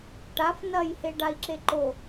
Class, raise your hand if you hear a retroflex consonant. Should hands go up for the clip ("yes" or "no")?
yes